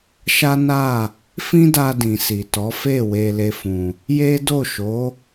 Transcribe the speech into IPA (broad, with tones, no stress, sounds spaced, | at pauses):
ʃ a˦ n a˦˨ | f ĩ˦ d a˧ d ĩ˨ s i˨ t ɔ˨˦ f e˦˨ w e˧ l e˧ f ũ˨ | j e˦ d o˦˨ ʃ o˨˦